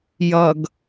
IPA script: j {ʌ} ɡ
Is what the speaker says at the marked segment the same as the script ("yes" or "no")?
yes